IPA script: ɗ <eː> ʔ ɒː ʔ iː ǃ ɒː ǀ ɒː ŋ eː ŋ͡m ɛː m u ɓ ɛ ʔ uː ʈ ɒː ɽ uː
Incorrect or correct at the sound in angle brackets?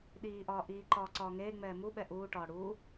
incorrect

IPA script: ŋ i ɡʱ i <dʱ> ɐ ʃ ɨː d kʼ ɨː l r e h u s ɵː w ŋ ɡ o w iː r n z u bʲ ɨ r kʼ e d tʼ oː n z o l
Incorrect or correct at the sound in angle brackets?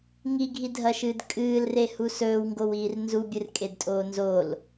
correct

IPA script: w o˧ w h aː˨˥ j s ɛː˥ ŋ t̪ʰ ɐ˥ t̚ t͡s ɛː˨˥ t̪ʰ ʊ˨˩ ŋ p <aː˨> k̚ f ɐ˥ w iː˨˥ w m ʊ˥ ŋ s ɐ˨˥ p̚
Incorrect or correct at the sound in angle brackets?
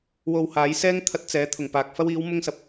correct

